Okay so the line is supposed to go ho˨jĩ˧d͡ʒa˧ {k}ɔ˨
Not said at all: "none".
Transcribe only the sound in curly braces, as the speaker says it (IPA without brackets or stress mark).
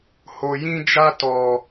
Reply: t